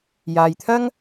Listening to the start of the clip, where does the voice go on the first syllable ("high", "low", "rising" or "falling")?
low